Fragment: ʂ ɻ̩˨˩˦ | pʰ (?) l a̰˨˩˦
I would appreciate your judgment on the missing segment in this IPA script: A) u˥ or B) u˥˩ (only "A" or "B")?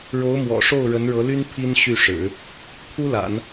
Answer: A